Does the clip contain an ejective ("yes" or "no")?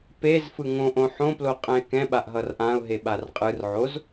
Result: yes